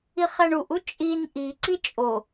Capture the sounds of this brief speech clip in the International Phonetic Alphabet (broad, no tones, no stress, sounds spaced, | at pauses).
i χ æ ɳ u ʔ u t͡ʃʼ i n ʔ i ǀ i t͡ʃʼ o